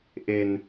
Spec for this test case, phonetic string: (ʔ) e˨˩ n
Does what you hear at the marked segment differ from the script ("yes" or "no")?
no